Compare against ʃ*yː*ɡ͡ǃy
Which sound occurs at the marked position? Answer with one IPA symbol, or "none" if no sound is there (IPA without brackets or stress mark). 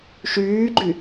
yː